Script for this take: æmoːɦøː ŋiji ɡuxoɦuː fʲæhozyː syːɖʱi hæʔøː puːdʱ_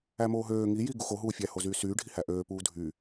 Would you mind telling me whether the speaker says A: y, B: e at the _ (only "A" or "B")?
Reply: A